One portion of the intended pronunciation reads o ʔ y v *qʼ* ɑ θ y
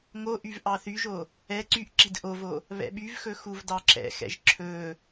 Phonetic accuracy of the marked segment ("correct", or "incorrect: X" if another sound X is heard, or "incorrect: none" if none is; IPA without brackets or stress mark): incorrect: ʔ